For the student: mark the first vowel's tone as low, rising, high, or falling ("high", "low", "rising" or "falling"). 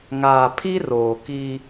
low